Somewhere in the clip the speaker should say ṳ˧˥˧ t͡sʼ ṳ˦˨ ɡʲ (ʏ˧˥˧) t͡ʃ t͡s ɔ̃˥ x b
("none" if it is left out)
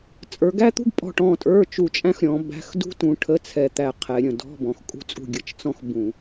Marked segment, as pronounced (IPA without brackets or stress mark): ə˧˥˧